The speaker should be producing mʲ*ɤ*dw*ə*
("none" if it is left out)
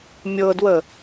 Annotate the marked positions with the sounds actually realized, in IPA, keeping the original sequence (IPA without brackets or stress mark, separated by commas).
ɤ, ə